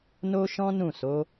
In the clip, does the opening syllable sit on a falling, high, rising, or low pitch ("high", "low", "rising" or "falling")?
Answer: high